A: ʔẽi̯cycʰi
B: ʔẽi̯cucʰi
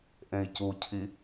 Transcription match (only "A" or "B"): B